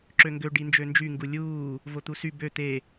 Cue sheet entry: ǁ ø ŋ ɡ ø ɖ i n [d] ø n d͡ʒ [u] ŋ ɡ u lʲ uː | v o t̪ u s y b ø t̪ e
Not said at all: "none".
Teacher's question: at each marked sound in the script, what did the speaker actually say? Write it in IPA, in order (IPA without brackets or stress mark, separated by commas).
d͡ʒ, y